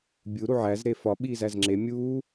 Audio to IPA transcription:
bʲ u ɾ u ʕ æ z ɾ e f ɒ ɓ iː z æ z ŋ͡ǁ e mʲ uː

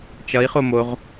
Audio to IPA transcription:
t͡ʃ ʌ i̯ χ o m o ʁ

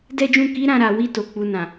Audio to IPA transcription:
d ɛ˦ d͡ʒ ũ˦˨ k i˨˦ ɾ ã˧ ɾ a˨ w i˧ t o˨ k͡p u˨ n ã˨

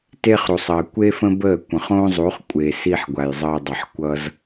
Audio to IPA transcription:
t e˦ χ ɾ u˨ sˤ əː˨ kʷ e˦ f ə̃˦ b əː˦˨ kʷ ə̃˨ χ õː˦ zˤ u˨˦ χ kʷʼ eː˨ s i˧ ħ ɡʷ a˨ j zˤ əː˧ dˤ ʌ˨ ħ kʷ ʌ˧ z

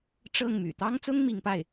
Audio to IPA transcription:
ʈ͡ʂ ɤ˥˩ ŋ m y̰˨˩ t̪ ɑ˥ ŋ t͡s ʊ˥ ŋ m i˧˥ ŋ p a˥˩ ɪ̯

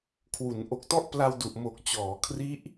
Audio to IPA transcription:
kʰ w u˩˦ n ʔ o˨˩ k̚ t ɔ˥˩ ʔ p l a˧ w d u˨˩ ʔ m o˨˩ k̚ t͡ɕ ɔː˩˦ kʰ r i˦˥ ʔ

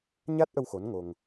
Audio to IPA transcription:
ɲ a˦˥ t̚ ʔ ə˧ w x o˧˥ n ŋ o˧ ŋ

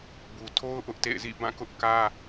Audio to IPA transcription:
b u˨ tʰ o˦ ʊ̯ ʔ ʊ˦ ʔ t ḛ˦˨ ɪ̯ z ḭ˦˨ b ã˦˨ k ʊ˦ ʔ k ä˦

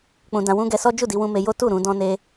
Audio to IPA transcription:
k͡p ũ˧ d ã˧ w ũ˦ ɡ ɛ˧ s ɔ˦ d͡ʒ u˦˨ d i˧ w ũ˧ m e˧ j o˦ t u˦˨ ɾ ũ˧ d ɔ̃˦ n e˦

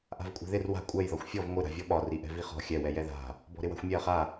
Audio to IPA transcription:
ʔ a̤ v kʷʼ ɛ̤ ð ɪ r w a̤ kʷʼ ɛ j ð ɒ xʷ fʲ ɔ v ŋʷ ɪ ɾ a̤ vʲ ɔ ɓ ɒ r i ʔ ɛ̤ v i χ ɔ̤ xʲ ɛ w ɛ j ɛ ð a̤ | b ɔ̤ ɾ ɪ w a̤ xʷ mʲ ɛ ɐ̯ χ a

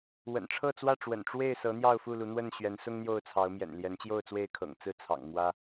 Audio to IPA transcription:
w ə̰˨˩ n ʈ͡ʂʰ ɤ˥˨ t͡s w ä˥˨ ʈ͡ʂ w ə̰˨˩ n ʈ͡ʂ w e˥˨ ɪ̯ s ɤ˨˦ n̪ j ɑ˥˨ ʊ̯ f u˥˨ l u˨˦ n̪ w ə˥˨ n ɕ ɥ ɛ˨˦ n s ʊ˦ ŋ n̪ j o˥˨ ʊ̯ t͡sʰ ɑ˨˦ ʊ̯ m j ɛ̰˨˩ n l j ɛ˨˦ n t͡ɕ j o˥˨ ʊ̯ t͡s w e˥˨ ɪ̯ kʰ ɤ̰˨˩ ŋ t͡s ɹ̩˥˨ t͡sʰ ɑ̰˨˩ ŋ m w ä˦

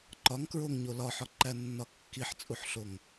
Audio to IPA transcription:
ǃ ɒ ŋ k ɹ o ŋ ɲ o l ɒ ħ ɒ ǃ æ nː ɒ kː i ħ t͡sʼ u ħ ɬ o ŋ

